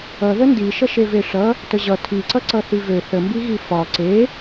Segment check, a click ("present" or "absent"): present